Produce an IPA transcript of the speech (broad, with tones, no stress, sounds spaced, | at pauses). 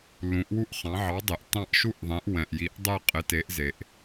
l ũ˩˥ ʔ w u˥˨ ʔ χ ɑ̃˩˥ ʕ ɑ˩˥ dˤ e˩ ʔ t ɑ̃˥˨ ʔ ʃ u˥˨ ʔ ðˤ ɛ̃˩˥ ʔ w ɛ̃˩ ʔ j i˩˥ ʔ dˤ ɛ˥˨ qʼ ɪ˩˥ t e˩˥ ʔ z e˩ ʔ